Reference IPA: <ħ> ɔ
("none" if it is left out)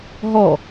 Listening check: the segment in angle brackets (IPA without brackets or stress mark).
ɦ